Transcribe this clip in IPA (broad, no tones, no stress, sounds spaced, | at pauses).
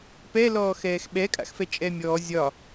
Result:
p ɛ l ɔː x ɛː x ɓ ɛ kʼ a̰ x f ɛ t͡ʃʼ ɛ mʲ ɔː zʲ ɒ